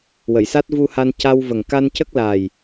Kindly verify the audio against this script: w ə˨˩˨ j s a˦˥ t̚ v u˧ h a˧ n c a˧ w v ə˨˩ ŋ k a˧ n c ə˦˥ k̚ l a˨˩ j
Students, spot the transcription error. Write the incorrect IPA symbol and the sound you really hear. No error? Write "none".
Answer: none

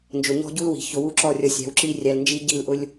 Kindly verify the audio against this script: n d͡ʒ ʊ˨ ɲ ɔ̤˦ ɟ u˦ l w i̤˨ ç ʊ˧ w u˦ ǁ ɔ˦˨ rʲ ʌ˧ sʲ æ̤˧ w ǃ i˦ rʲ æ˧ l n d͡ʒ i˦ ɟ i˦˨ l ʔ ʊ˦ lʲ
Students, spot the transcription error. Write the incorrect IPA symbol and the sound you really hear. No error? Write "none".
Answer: ǃ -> ǁ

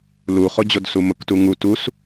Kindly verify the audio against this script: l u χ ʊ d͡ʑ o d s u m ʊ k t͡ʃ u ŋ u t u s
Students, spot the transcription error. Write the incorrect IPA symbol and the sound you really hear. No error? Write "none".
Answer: t͡ʃ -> t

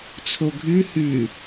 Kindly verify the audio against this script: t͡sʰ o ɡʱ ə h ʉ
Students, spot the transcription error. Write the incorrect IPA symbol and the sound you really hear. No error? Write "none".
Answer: ə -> ʉ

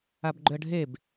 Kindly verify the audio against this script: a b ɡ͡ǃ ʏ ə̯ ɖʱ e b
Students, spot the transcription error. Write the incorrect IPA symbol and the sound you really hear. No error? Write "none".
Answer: none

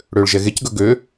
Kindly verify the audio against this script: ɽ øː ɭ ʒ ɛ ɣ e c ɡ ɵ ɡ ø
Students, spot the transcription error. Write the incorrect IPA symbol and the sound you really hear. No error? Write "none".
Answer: none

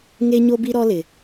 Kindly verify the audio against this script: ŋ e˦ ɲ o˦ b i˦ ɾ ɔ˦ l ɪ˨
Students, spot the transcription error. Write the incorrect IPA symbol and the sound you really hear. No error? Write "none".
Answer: none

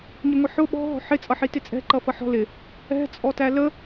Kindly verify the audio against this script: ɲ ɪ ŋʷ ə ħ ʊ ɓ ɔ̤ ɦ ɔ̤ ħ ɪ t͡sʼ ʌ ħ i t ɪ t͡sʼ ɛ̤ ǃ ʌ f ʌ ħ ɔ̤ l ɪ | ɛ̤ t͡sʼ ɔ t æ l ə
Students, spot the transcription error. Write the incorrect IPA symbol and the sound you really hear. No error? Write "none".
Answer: none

